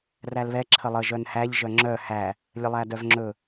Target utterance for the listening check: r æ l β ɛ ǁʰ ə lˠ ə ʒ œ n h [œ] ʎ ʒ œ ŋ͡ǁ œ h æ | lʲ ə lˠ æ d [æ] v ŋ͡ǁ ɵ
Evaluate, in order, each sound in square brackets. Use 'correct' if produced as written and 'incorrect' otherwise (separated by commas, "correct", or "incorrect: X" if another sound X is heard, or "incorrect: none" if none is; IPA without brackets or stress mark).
incorrect: æ, incorrect: œ